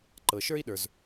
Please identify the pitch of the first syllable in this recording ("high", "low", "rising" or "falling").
low